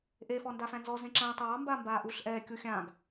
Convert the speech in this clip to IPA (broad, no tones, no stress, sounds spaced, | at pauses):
ʔ e f ɔ n d a f æ̃ n z ɔ z ẽ ǁ æ̃ tˤ ɑː m b aː m b aː ʔ u ɬ ʔ ɛː kʲ u xʲ ã ɡ